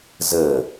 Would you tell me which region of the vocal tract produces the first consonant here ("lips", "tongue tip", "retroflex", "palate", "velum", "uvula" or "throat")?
tongue tip